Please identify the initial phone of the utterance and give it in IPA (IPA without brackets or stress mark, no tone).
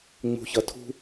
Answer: ŋ͡m